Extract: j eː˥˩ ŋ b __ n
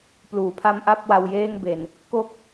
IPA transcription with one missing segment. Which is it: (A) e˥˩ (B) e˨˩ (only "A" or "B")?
B